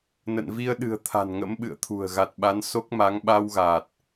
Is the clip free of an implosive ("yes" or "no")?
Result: no